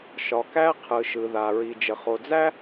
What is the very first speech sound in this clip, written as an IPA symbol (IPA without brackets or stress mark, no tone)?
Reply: ʃ